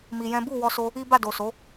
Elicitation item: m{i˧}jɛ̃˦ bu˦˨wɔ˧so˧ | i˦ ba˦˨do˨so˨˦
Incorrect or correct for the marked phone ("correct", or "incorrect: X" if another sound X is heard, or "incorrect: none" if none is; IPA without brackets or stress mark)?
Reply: correct